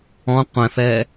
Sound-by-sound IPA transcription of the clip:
ɔ̃ qʷ ɛ̃ f ɛ

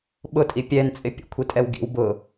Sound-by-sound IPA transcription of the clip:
ɓ ʊ tʼ i pʲ ɛ n t͡sʼ ɪ pʲ ə̰ kʷʰ i tʼ ɛ w ɡ ḭ w b ʊ

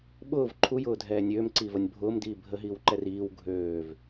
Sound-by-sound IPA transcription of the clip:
ɓ ʊː v ǃʰ u j ʊː dʱ ɛː nʲ øː m ǀ iː v ɐ nʲ bʱ ʊː m d iː bʱ ə ɦ iː w ǃ ɛ r iː w ɡʱ øː v

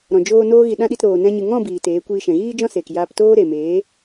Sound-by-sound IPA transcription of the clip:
ɾ ɔ̃˨ d͡ʒ oː˧ n oː˦ ɣ i˧ ɗ ã˦ ɗ i˧ t ɾ oː˨ n ɛ̃˧ ɲ ɨ˨ ŋ ɔ̃˦˨ b iː˨ t eː˨˦ kʷ iː˧ ʃ ɛ̃˨ ɣ iː˦ d͡ʒ ɔ̃˦ s eː˨ k j aː˧ p t oː˦ ɾ e˨ m eː˨˦

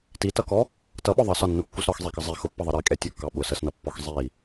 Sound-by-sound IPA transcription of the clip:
t i t ʌ k ɔ | t ʌ ɓ ɔ ðˤ ʌ s ɒ nː u kː u s ɾ ɒ x zˤ ɛ k ʌ zˤ i x ʊ pː ʌ ðˤ ʌ ɾ i kʼ ɛ tʲ u kː ɑ ɓ ʊ s ə s n ʌ pː ɔ x zˤ i

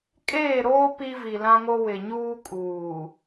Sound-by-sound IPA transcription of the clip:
kʼ eː˦˨ ɾ oː˦ p i˦ v i˨ l ã˦ ŋ o˦ w ɪ˨ ɲ uː˦ kʼ uː˨

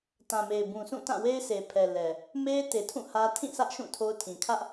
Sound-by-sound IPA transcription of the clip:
t ã˨ m e˨ ɪ̯ b ũ˨ sʰ ũ˦˨ t ã˦˨ w e˦ ɪ̯ s e˨ pʰ ɛ˨ l ɛ˨ | m e˦ ɪ̯ t e˨ tʰ ũ˦˨ h ä˦ tʰ ĩ˦˨ s ä˦ ʔ ʃ ũ˦˨ tʰ o˦ ʊ̯ tʰ ĩ˨ kʰ ä˦ ʔ

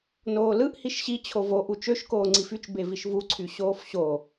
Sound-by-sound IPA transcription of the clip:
n oː l ɯ ʔ h i ʃ ɕ i t͡ɕʰ o v o ʔ u t͡ʃ ø ʃ k oː ŋ͡ǀ i f y t͡ʃ b e v i ʃ v u ǀʰ y ɕ oː f ɕ o

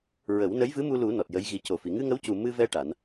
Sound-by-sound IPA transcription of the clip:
ɹ ə˨˩˦ w n ə˧˥ j v ɨ˧˥ m u˧ l u˨˩˦ n ɔ˨˩ t̚ j ə˧˥ j ɣ i˨˩˦ c o˨˩ f i˨˩˨ ŋ ɨ˧ ŋ ə˧˥ w c u˨˩ m ɨ˧ v ɛ˧ ʈ a˨˩˦ n

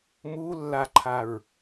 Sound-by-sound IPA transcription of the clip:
m u lː a ǃʰ a ɹ

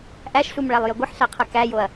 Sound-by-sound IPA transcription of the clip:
ʔ æ ʃ ɬ u m ɭ æ lˠ j ə ɡʷ ə ħ ɬ æ qʰ ə k æ j o ɐ̯

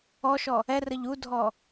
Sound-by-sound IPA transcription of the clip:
ɔ ʃ ɔ | ɛ r ə ʎ u dʱ ɔ

